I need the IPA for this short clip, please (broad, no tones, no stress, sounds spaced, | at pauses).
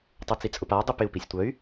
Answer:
tˤ o t͡s i t͡sʼ ʊ p a dˤ u p ɪ u̯ p i sʲ tʷ œ y̯